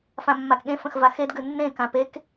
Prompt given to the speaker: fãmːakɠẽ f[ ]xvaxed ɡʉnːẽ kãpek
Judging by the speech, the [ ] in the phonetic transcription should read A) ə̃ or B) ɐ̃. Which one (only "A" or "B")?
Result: A